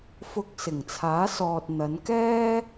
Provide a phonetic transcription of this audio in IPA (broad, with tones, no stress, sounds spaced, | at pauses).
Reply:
f ʊ˧ k̚ s ɪ˨˩ ŋ t͡sʰ aː˨˥ s ɔː˨ t̚ n̪ ɐ˨˧ n k ɛː˥